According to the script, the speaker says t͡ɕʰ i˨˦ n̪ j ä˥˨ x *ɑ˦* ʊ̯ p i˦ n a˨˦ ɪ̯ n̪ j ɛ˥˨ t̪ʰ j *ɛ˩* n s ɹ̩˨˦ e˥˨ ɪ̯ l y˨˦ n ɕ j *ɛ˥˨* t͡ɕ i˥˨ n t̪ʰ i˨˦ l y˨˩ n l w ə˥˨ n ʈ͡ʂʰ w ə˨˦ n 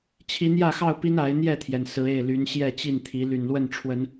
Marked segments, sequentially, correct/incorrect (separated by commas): incorrect, correct, correct